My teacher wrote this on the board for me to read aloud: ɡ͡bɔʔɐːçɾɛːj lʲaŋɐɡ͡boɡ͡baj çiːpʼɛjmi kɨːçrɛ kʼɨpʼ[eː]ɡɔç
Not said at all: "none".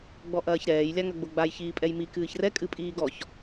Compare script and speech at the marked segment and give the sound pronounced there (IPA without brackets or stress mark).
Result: iː